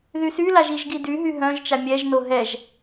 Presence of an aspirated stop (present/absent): absent